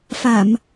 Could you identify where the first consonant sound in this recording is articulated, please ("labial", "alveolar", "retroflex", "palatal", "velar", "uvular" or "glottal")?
labial